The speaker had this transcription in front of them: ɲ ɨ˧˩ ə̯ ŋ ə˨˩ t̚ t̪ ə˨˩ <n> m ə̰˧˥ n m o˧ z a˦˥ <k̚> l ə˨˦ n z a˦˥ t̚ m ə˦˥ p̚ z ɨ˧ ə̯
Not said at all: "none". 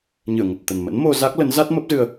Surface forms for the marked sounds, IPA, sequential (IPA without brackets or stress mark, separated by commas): n, k̚